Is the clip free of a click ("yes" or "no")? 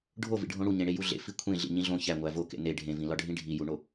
yes